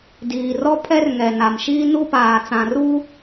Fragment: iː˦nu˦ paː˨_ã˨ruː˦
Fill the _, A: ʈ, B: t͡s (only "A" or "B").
B